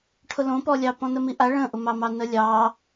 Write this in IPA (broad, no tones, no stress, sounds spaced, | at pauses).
ʈʰ ʊ l õ p ɔ lʲ ɑ p ɔ̃ n ə m i ʔ a ɭ ə̃ ʔ ʊ m ɑ m ɑ n ə lʲ ɑ